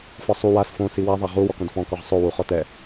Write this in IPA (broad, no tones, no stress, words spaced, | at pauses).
fɒsˤu was fõ siwa ðˤaʁu wɔkõdfɔ̃ kɒʁsˤo wuχɔtɛ